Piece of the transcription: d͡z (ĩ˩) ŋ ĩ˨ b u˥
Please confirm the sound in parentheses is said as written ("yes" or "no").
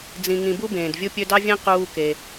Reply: no